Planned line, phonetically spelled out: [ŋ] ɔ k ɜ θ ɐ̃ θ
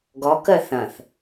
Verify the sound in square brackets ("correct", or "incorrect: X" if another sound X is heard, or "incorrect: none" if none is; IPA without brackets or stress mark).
incorrect: ɡ